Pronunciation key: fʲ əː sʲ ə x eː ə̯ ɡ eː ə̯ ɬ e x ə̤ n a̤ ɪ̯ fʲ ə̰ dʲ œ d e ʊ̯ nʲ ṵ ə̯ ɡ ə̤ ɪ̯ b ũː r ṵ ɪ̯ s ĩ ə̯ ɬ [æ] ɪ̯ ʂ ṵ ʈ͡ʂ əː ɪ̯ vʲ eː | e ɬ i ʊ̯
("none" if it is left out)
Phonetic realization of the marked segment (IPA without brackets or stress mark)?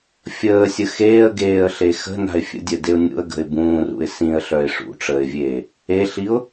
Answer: œ